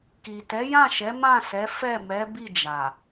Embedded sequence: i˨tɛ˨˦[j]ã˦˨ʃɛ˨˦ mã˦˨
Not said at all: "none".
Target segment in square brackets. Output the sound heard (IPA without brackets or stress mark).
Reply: j